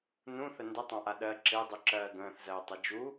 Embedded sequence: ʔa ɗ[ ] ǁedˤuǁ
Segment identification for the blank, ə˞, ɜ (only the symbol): ɜ